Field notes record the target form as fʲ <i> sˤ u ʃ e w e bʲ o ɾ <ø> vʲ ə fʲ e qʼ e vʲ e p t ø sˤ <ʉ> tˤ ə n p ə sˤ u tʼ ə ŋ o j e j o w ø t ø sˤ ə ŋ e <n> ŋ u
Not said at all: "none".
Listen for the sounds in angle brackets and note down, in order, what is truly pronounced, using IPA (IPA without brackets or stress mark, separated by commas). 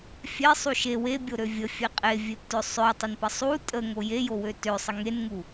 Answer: e, ø, ø, n